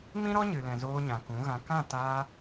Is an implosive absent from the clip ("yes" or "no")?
yes